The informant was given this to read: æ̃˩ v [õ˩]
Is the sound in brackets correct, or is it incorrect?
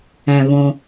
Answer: correct